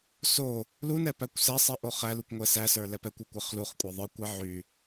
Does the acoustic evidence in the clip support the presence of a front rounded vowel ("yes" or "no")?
yes